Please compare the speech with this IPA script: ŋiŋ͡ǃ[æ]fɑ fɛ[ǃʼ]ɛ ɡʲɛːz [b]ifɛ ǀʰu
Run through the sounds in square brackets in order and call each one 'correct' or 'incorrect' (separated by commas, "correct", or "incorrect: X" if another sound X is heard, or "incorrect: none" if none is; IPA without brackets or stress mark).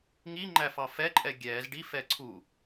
correct, correct, incorrect: ɖ